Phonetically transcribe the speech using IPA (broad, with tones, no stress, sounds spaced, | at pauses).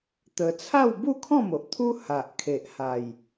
t̪ ə˧ t͡sʰ a˥˧ w b u˥˧ kʰ ɔ̃˥˧ m o˨ ʔ t̪ʰ u˦ h a˨ ʔ kʰ e˨ ʔ h a˨˩ j